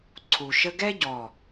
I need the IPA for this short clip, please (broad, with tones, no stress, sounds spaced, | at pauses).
ǀʰ u˨ ʃ ə˧ ɡ ɛ˦ ɟ ɔ˦˨